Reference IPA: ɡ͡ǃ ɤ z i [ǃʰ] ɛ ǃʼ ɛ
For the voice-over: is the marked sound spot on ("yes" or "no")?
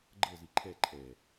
yes